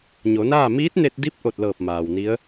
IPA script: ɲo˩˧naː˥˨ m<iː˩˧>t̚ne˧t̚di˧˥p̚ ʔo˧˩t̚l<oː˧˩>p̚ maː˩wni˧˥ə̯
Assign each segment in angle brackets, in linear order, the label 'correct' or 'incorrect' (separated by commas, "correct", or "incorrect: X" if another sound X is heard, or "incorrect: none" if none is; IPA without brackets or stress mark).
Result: incorrect: iː˧˥, incorrect: ɤː˧˩